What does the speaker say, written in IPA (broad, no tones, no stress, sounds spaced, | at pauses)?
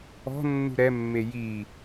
ɔ̤ nː ṳ ɾ ɛ mː e j i